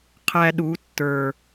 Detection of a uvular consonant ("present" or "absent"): present